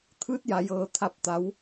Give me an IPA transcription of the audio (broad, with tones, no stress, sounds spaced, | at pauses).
t̪ʰ ɯː˧˥ t̚ j a˩ j ɤː˩ t̪ʰ a˧˩ p̚ t̪ a˩˧ w